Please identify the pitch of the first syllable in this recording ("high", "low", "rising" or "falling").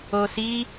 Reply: low